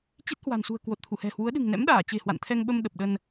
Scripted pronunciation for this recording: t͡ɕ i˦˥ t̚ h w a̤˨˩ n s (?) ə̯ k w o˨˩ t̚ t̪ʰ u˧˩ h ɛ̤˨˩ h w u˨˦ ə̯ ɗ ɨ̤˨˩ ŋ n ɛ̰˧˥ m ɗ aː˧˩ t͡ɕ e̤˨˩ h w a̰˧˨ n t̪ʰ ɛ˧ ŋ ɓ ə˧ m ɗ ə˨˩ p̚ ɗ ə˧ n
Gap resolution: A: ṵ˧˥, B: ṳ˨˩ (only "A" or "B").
B